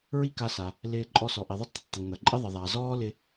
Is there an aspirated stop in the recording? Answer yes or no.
no